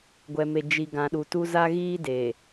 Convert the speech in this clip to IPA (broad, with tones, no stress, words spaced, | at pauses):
ɡʷɛ˨me˨ d͡ʒi˨ ɡã˨ɗu˨tu˦ za˦ɣiː˦ deː˨